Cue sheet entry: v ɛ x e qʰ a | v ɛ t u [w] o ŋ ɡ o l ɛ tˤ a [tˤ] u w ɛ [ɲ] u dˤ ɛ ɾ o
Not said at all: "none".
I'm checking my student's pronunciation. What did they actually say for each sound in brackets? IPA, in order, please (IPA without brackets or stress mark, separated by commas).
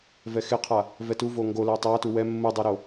v, t, mː